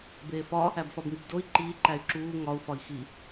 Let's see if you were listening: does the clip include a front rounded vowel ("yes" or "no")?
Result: yes